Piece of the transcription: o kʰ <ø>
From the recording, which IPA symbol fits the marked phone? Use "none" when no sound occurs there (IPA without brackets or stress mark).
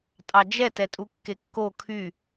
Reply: y